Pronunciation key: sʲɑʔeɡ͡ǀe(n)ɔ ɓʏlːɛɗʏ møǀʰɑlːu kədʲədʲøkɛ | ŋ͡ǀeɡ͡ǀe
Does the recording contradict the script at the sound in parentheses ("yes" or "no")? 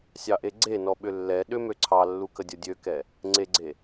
no